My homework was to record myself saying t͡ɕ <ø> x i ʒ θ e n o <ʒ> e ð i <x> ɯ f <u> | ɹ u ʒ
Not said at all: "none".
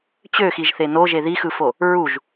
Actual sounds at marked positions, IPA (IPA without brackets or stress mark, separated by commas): ø, ʒ, x, o